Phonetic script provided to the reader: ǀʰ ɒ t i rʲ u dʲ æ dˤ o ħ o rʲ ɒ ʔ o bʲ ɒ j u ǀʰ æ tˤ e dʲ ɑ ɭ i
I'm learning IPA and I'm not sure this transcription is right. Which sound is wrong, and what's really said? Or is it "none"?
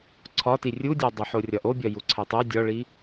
ɑ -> ɒ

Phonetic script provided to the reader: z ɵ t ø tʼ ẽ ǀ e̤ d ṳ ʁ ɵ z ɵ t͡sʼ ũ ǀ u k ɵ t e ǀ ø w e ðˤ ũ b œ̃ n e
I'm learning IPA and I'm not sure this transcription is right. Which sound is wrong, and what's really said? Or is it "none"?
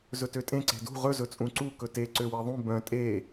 n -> tʼ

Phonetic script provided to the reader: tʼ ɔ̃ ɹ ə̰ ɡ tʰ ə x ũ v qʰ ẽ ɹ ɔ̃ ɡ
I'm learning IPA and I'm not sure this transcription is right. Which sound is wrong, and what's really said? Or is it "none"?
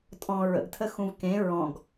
qʰ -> k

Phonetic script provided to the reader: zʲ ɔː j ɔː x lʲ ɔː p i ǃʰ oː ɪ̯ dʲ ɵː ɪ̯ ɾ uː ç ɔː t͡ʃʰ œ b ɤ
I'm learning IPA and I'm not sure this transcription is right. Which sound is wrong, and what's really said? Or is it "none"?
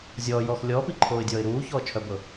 ɵː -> ɔː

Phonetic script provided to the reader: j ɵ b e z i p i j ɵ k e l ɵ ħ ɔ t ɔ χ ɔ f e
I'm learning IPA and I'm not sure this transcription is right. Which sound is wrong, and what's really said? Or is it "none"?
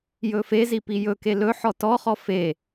b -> f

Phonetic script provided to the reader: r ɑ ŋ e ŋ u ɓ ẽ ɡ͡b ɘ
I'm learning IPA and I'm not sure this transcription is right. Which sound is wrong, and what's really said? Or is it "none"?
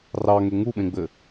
none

